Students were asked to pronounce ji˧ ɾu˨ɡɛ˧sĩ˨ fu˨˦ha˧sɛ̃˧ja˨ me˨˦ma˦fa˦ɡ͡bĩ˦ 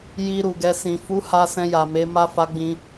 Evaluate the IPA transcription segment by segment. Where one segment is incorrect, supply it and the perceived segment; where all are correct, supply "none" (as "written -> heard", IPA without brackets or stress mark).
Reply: none